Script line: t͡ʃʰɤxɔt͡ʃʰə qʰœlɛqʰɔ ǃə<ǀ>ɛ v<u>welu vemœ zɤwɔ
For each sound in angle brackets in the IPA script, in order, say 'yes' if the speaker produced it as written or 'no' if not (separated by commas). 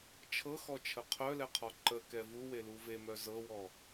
no, yes